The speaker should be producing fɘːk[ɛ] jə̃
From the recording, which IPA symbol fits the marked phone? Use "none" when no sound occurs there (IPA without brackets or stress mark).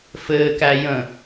æ